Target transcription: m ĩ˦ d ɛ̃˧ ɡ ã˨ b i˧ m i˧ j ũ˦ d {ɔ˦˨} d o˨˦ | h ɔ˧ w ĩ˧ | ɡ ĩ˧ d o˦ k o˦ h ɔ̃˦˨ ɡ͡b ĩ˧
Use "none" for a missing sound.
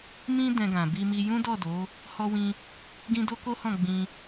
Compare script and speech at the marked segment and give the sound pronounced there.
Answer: ɔ˦˨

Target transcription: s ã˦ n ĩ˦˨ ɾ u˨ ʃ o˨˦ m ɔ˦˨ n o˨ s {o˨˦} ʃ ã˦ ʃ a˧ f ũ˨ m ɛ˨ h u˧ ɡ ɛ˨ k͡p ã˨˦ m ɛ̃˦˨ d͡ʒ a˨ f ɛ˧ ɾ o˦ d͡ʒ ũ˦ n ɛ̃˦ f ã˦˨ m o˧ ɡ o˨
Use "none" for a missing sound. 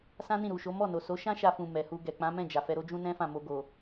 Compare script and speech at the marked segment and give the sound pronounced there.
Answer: o˨˦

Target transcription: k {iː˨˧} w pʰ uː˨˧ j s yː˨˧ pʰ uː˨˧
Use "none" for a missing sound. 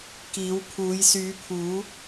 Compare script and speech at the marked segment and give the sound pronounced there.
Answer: iː˨˧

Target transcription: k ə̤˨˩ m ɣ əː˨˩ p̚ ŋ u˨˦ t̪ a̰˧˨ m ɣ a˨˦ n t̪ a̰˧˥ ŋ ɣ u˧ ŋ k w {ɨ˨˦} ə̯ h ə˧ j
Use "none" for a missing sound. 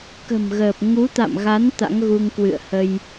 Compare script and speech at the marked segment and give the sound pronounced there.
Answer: ɨ̰˧˨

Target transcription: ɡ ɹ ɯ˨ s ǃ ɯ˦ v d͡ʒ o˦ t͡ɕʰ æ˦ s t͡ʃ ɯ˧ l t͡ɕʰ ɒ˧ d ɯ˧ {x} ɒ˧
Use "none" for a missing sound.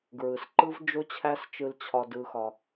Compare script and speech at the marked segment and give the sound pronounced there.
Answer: x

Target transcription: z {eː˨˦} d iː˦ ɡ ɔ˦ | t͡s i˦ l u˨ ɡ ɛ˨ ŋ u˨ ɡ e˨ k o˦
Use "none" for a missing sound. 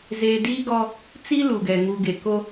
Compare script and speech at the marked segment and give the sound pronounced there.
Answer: eː˨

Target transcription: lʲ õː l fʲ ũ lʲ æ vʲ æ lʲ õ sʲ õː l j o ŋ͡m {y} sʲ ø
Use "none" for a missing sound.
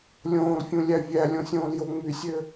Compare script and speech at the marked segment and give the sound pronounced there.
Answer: y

